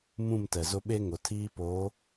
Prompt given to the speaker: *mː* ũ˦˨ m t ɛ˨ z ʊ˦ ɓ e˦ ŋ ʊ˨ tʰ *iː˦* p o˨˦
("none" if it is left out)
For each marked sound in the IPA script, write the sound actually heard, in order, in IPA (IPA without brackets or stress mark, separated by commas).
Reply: m, iː˦